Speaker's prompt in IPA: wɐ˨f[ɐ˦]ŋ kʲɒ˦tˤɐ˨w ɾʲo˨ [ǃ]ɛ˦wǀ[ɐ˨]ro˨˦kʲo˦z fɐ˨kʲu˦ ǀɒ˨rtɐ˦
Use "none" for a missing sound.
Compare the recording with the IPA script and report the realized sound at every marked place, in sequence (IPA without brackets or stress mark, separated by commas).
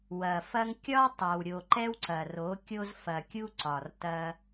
ɐ˦, ǃ, ɐ˨